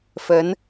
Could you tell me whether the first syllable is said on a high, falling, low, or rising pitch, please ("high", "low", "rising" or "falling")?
rising